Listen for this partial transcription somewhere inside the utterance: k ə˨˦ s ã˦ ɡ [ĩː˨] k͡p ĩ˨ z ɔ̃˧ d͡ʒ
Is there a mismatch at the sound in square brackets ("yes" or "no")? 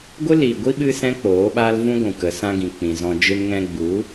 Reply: yes